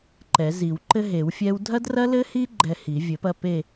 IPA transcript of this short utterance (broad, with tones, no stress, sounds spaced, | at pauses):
ǃ ɛ˨˩˦ z i˨˩˦ w ǃ ɘ˦˥ ɦ e˨˩˦ w fʲ ɛ˦˥ w dʱ ɐ˦˥ d r ɐ˦˥ l ɘ˦˥ h i˦˥ ɡ͡ǃ ɛ˦˨ h i˨˩˦ vʲ ɘ˨˩˦ p ɐ˦˨ p e˦˨